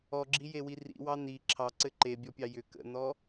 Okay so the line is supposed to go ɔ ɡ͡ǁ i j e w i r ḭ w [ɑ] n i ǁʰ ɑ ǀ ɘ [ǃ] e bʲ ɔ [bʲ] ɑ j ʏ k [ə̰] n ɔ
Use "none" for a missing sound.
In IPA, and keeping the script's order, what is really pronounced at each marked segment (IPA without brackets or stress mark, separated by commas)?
ɑ, ǃ, pʲ, ə̰